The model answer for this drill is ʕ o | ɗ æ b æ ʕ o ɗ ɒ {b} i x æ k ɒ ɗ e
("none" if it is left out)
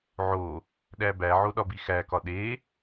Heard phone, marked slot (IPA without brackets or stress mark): b